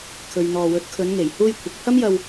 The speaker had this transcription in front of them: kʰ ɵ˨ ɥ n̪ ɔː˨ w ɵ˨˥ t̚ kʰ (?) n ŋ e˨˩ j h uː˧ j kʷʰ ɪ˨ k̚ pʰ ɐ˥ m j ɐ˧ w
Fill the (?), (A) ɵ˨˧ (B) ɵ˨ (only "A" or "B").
A